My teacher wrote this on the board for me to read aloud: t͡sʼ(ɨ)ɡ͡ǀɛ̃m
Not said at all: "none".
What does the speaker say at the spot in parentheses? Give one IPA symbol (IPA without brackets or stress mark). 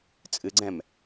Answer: ɨ